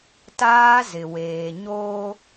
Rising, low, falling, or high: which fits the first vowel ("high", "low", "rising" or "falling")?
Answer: high